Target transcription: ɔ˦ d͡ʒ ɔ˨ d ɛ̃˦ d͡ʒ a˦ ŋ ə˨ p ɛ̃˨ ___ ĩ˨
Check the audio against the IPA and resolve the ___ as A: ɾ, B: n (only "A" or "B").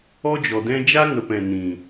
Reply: B